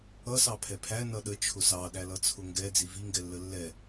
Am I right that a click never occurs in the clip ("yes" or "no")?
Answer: yes